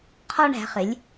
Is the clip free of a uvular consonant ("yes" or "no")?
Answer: no